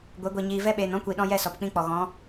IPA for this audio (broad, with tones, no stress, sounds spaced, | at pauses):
ɡʷ e˨˦ ɡʷ i˨ ɲ iː˨ v ɛ˧ ɓ eː˨ n ɔ̃˦ kʷ i˨ ɗ ɔ̃˧ j ɛ˦˨ s ɔ˨ p k͡p ĩ˧ k͡p ɔ˨ ɣ ɔ̃˨˦